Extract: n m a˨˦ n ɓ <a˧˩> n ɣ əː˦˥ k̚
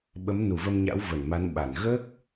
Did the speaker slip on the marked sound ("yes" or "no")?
no